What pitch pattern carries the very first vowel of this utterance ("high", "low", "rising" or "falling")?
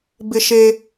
high